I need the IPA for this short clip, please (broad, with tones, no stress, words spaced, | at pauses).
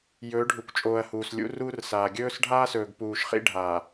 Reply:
jɵː˨˦ɖʱu˨kʷt͡ʃʼoː˨ɐ̯ huː˨slʲṵ˦ruː˦rsaː˨ ɡʲɵː˦sɖʱaː˦sɵː˨ɡ puː˨ʃ χḭ˦ɖʱaː˨